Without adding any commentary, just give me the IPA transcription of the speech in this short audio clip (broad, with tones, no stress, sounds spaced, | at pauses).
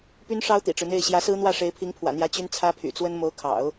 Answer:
p y˥ n ʂ ɑ˥ ʊ̯ t̪ ḭ˨˩ ʈ͡ʂ ɻ̩˦ n̪ e˥˩ ɪ̯ ɕ j ä˧˥ s ɹ̩˥ n̪ w ä˥˩ ʂ e˧˥ ɪ̯ pʰ i˧˥ ŋ pʰ w ä̰˨˩ n̪ j ä˧˥ t͡ɕ y˥ n t͡sʰ ä˥ pʰ y̰˨˩ t͡s w ə˥ n m o˧˥ ʊ̯ kʰ ɑ̰˨˩˦ ʊ̯